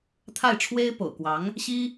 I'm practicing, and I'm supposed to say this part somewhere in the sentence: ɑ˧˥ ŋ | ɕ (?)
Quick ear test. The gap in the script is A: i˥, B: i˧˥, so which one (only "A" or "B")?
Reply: A